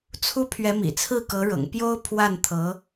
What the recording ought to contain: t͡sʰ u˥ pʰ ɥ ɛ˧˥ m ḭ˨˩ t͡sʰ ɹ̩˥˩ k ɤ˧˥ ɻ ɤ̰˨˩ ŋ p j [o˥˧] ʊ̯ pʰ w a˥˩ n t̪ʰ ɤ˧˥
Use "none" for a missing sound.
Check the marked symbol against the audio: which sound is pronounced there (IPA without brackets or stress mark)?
o˥